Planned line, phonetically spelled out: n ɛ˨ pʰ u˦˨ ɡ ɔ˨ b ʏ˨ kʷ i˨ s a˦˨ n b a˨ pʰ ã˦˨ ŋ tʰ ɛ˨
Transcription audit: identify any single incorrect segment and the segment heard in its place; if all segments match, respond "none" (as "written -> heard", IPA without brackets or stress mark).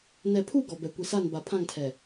ʏ˨ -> ɛ˨